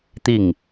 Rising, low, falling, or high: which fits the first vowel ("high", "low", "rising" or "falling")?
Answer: falling